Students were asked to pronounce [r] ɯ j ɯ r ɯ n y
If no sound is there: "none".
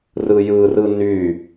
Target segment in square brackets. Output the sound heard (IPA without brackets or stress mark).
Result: r